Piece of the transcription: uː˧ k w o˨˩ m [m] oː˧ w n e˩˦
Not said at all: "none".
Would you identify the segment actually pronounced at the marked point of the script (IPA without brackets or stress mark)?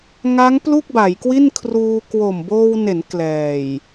b